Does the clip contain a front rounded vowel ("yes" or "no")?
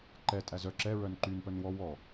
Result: yes